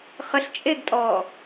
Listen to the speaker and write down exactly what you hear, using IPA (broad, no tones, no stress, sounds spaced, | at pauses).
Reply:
χ ə ɬ t͡ʃʼ e ɡ tʼ ɔː